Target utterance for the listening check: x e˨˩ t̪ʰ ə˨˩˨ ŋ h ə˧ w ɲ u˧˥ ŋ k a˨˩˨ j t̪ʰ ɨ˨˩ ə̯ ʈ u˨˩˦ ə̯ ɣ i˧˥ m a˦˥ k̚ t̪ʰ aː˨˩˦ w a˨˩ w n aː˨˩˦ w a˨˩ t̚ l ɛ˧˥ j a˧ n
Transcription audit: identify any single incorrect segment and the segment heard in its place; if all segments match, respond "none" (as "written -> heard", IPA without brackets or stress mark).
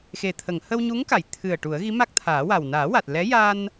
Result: none